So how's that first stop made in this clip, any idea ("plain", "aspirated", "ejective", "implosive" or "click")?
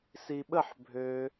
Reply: implosive